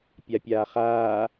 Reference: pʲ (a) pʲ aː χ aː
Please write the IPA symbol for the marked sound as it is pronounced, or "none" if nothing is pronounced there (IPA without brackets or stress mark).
a